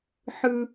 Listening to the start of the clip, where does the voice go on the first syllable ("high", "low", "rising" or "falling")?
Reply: high